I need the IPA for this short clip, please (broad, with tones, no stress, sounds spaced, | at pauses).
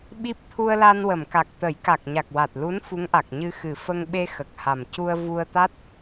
ɓ i˦˥ p̚ t̪ʰ u˧ ə̯ l a˧ n w ə˨˩˨ m k a˨˩ k̚ t̪ ə˨˩˦ j k a˨˩ k̚ ɲ a˨˩ k̚ w a˨˩ t̚ l u˧˥ n f u˧˥ ŋ ʔ a˨˩ k̚ ɲ ɨ˧ x ɨ˨˩ f ə˧ ŋ ɓ e˧ x ə˨˩ k̚ h a˨˩ m c u˧ ə̯ v u˧ ə̯ t̪ a˦˥ t̚